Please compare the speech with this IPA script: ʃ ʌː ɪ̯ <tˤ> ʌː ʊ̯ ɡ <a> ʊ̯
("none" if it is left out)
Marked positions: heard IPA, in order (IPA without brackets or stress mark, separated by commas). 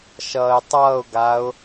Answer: tˤ, a